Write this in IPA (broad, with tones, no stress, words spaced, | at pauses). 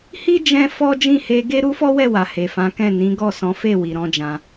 hi˦ d͡ʒɛ̃˦fɔ˦ d͡ʒĩ˦˨he˧ ɡe˦ ɾu˦fɔ˦wɛ˦˨wa˨ he˨fã˨˦kɛ̃˦˨ nĩ˨˦ɡɔ˦˨sɔ̃˨˦fe˦˨ wi˨ɾɔ̃˨˦d͡ʒã˧